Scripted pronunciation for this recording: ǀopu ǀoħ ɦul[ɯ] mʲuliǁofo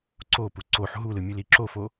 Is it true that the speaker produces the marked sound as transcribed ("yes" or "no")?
yes